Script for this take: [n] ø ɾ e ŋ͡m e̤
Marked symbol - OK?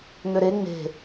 no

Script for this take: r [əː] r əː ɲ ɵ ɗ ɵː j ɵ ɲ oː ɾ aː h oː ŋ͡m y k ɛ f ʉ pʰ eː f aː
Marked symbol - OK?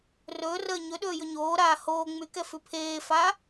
no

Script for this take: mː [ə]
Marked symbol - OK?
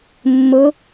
no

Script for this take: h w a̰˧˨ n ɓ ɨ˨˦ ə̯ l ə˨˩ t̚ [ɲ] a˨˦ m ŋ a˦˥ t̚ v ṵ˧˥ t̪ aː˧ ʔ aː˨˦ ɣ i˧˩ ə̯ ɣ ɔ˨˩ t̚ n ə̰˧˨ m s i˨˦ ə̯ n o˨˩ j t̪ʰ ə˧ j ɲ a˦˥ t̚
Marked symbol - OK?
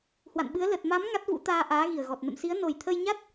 no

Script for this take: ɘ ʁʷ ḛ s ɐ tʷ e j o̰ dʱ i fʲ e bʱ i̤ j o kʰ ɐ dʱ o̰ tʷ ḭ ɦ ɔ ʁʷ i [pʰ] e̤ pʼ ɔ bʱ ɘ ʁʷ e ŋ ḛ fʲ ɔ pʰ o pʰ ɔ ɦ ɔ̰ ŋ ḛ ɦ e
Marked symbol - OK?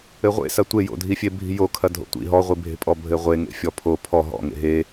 no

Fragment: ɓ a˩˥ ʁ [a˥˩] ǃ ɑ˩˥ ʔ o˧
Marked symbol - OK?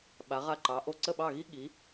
yes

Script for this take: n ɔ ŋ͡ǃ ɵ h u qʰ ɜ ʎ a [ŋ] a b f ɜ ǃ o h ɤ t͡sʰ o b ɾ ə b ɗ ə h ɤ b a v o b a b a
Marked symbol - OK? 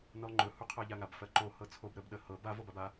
yes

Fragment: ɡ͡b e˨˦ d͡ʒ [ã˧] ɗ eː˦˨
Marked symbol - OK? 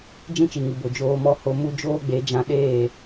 yes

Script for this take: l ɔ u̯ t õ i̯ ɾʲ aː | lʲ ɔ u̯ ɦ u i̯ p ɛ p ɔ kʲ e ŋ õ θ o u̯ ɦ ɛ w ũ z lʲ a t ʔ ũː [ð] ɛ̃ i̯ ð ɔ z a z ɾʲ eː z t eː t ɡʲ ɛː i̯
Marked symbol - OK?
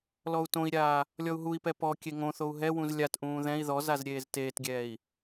yes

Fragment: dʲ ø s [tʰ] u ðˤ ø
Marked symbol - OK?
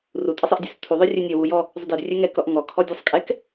yes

